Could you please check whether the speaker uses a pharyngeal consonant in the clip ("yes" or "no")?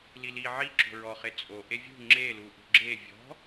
yes